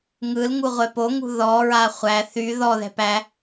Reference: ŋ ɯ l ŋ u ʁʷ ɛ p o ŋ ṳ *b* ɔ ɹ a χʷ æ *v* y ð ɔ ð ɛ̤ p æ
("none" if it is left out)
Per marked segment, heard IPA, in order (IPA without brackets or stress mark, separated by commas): ð, θ